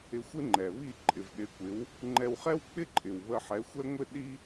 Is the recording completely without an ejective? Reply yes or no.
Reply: no